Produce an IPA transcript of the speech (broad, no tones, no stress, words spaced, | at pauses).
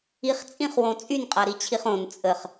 iχt͡sʼĩχwõ t͡sʼynqʼaɾit͡ɕʰiχ õn t͡sʼəχ